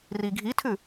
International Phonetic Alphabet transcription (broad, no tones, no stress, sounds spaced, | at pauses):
r i ɡʱ i tʰ ʉ